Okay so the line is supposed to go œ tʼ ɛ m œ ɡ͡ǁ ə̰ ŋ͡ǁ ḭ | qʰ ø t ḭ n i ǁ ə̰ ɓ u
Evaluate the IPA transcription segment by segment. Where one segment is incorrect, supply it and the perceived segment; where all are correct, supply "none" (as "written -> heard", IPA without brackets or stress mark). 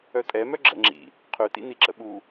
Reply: none